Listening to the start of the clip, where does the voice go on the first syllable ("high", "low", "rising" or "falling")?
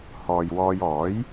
low